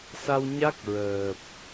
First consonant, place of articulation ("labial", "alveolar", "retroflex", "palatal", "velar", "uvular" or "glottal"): alveolar